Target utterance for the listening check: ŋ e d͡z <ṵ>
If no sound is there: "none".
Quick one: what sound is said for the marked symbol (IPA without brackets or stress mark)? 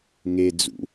ṵ